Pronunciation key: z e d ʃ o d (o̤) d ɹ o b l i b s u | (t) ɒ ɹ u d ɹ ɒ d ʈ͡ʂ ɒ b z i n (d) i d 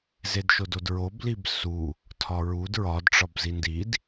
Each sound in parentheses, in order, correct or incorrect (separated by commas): incorrect, incorrect, correct